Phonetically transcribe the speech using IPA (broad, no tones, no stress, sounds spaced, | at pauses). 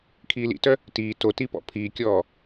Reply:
kʰ iː l ḭ t œ | t iː t o t i p ɔ̰ pʰ iː kʲ ɔː